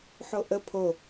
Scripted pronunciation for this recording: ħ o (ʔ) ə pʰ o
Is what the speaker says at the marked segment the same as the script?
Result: yes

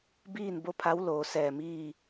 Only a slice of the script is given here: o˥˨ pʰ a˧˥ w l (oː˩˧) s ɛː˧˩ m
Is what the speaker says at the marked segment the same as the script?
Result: yes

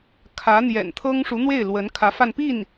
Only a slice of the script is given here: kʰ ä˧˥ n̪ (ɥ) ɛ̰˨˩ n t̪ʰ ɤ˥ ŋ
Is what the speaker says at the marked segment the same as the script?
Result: no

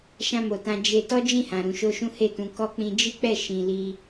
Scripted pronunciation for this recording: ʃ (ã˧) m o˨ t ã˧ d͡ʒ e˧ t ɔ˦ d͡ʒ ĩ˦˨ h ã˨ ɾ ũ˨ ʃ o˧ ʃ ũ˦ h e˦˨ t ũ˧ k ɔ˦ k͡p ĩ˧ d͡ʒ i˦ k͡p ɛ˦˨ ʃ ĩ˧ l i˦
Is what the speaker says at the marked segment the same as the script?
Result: yes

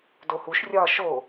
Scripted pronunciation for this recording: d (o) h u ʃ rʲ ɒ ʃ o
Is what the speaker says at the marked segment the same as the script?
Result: yes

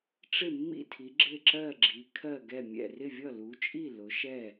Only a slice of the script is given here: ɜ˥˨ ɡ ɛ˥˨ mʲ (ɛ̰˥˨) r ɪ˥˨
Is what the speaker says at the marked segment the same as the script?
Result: yes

